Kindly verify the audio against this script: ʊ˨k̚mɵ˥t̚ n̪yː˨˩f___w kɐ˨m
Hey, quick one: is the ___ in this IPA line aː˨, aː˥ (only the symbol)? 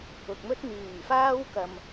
aː˥